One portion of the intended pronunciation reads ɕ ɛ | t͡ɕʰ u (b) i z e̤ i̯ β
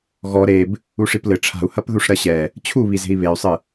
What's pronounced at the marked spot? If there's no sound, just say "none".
β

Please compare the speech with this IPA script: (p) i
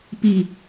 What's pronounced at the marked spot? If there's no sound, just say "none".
p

